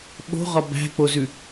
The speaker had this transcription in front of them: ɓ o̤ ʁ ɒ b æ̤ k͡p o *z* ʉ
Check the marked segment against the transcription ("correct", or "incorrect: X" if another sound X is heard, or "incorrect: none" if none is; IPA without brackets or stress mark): correct